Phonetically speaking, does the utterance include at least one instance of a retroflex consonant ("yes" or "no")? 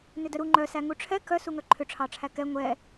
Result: yes